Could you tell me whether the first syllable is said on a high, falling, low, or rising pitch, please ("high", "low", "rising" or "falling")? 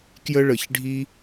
high